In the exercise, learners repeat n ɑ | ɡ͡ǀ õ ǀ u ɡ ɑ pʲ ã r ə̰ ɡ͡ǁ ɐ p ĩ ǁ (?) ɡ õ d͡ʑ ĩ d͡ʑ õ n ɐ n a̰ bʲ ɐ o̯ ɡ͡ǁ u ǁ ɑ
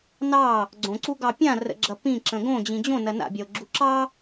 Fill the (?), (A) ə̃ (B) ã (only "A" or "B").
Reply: A